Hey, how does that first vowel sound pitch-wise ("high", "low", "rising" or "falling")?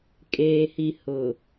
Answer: low